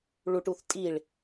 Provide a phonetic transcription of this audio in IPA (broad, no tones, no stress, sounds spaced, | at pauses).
ɭ u ʈ u θ tʼ i ɭ